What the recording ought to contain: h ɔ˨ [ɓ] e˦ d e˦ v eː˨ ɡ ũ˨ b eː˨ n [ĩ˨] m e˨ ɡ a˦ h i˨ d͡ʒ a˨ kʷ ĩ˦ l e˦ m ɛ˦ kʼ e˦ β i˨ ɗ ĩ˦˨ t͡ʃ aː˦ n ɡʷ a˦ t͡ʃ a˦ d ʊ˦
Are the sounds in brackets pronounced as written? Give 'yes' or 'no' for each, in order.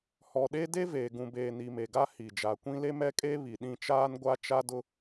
no, no

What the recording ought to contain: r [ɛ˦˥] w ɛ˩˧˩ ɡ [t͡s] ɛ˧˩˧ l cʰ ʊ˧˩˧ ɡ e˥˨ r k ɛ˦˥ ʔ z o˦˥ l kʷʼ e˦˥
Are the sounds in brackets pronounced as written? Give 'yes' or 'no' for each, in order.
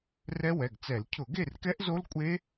yes, yes

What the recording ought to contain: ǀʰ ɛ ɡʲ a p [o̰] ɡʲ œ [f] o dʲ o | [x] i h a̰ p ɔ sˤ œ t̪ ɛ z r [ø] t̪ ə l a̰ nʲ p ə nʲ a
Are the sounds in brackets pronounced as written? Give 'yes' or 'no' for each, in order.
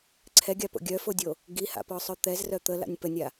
yes, yes, no, no

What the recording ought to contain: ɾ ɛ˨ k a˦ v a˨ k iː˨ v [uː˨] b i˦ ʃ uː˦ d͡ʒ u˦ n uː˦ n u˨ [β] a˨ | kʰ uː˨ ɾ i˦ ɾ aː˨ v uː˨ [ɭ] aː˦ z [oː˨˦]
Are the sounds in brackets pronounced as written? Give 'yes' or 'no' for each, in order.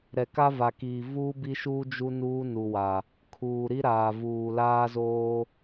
no, no, no, no

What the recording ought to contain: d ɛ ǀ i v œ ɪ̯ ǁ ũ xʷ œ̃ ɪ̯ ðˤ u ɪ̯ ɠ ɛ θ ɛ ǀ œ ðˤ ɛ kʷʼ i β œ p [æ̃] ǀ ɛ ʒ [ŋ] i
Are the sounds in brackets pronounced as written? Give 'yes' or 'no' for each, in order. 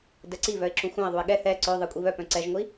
no, no

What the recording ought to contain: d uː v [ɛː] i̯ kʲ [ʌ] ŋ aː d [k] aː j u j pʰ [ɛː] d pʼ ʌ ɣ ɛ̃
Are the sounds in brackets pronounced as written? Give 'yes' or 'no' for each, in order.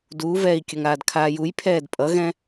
yes, yes, no, yes

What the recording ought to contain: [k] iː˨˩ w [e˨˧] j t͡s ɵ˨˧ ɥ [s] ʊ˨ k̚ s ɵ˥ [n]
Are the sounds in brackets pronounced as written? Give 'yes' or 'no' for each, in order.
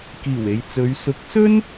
yes, no, yes, yes

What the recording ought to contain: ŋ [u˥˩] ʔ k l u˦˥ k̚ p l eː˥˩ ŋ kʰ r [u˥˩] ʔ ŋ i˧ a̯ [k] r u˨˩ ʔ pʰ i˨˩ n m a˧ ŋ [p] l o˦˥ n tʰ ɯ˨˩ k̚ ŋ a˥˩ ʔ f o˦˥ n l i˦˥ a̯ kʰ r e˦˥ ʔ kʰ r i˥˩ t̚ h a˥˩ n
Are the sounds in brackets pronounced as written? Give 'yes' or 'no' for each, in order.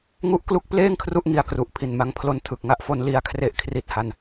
no, yes, yes, no

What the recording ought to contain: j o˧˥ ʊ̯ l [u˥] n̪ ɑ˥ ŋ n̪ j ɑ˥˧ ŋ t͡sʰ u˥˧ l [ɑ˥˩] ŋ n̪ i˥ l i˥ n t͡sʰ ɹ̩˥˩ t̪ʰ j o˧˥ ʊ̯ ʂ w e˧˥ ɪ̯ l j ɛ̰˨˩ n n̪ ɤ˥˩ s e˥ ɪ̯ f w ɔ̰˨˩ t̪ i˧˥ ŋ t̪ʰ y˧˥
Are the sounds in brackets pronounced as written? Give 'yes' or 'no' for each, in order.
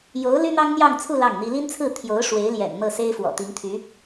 no, yes

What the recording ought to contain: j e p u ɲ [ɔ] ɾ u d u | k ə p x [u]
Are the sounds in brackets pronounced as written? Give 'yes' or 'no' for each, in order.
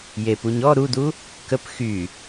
yes, no

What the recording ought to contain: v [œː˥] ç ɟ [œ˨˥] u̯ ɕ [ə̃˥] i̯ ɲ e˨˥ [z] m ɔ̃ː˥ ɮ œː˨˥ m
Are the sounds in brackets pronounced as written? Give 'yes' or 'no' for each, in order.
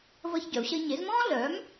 no, yes, no, yes

